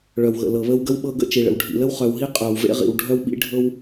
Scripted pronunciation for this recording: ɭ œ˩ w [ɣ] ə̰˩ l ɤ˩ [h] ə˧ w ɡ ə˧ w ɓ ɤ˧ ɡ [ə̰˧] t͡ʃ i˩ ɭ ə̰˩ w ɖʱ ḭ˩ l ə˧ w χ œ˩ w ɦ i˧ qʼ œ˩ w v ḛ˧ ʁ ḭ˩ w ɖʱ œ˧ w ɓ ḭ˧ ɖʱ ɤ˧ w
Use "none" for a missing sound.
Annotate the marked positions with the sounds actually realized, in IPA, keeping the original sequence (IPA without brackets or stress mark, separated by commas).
ɣ, β, ə̰˧